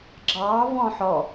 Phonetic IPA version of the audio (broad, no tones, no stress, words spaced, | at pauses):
ɡ͡ǁɑːvɔ̃ː ħɔ